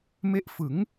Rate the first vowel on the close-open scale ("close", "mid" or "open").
mid